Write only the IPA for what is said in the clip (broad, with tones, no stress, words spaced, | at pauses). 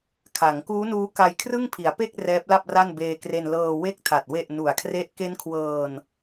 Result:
kʰa˩˦ŋkuː˦˥nuː˦˥ ka˧jkʰrɯ˥˩ŋpʰi˩˦a̯pe˥˩k̚ rɛː˦˥p̚la˥˩p̚ra˥˩n beː˧kre˧nlɤː˧ we˦˥k̚tʰa˨˩t̚ we˨˩ʔ nu˨˩a̯kʰre˦˥ʔ ke˦˥nkʰwɤː˧n